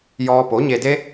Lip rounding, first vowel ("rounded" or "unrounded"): rounded